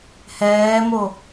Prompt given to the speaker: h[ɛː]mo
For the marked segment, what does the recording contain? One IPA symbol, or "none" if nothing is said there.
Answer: ɛː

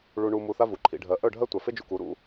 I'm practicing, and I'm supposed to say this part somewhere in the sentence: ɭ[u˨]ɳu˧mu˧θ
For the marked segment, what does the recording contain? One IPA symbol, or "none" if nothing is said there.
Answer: u˧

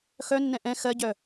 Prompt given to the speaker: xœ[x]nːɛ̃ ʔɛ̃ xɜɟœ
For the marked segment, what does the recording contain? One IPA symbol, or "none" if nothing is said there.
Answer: none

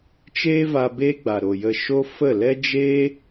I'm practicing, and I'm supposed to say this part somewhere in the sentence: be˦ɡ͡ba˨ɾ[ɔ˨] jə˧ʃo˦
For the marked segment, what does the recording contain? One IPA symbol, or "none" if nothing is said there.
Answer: o˨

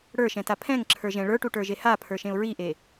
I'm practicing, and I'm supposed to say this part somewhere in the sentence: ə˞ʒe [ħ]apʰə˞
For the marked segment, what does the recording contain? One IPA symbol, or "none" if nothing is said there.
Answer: h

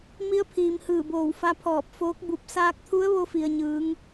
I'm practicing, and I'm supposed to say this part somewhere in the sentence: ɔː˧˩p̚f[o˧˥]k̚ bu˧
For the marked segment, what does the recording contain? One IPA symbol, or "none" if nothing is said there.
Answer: oː˧˥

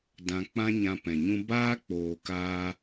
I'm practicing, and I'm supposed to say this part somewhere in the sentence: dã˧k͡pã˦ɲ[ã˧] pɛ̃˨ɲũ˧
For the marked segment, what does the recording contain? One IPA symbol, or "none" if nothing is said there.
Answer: ã˧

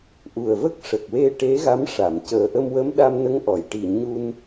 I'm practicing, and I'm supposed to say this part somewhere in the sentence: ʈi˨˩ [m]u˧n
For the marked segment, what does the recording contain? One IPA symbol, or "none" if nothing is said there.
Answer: ɲ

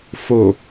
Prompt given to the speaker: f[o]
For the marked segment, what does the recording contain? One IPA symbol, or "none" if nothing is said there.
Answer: o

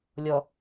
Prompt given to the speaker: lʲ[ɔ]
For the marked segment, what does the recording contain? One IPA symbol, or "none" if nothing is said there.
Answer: ɔ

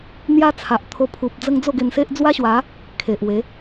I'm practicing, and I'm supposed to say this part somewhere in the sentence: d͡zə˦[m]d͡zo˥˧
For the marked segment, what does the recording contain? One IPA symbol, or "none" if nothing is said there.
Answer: ŋ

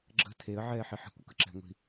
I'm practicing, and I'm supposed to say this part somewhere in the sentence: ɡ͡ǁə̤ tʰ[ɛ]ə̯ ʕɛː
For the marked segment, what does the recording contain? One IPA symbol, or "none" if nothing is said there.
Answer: e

